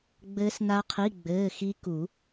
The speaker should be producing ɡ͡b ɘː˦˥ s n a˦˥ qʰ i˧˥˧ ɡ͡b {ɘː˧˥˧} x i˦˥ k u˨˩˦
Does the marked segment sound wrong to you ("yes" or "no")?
no